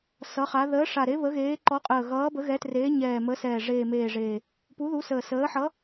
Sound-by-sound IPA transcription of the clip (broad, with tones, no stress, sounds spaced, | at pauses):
s ʌ˨˦ χ a˨˦ ð əː˨˦ ʂ a˨˩ ɾ e˨˦ β ə˨˦ ɣ eː˨˦ ǃ ɔ˨˦ qʼ əː˨˩ ɣ ʌː˨˦ b ə˨˦ ɣ ɛ˨˦ t r eː˨˦ ɲ ɛː˨˩ m ə˨˦ s ɛː˨˩ ʐ eː˨˩ m eː˨˩ ʐ eː˨˩ | p u˨˦ ð u˨˦ s əː˨˩ s əː˨˦ ħ ʌ˨˦